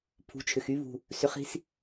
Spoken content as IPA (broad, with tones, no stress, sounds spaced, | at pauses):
pʰ ṳ˨ t͡ʃʰ ʏ˨ x y˦ β ṳ˨ | s ʏ˨˦ χ i̤˦ s